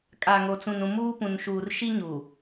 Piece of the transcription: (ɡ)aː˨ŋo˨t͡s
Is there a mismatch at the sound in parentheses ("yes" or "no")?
yes